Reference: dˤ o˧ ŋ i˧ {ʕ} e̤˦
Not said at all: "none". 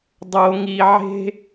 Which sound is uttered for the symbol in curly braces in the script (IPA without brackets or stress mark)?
ʕ